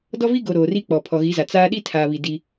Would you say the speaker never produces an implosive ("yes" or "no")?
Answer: no